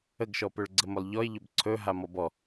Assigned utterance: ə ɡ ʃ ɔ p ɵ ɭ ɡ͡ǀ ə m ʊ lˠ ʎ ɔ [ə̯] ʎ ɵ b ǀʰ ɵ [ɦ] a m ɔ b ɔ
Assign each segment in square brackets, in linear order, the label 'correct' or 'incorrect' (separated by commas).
incorrect, correct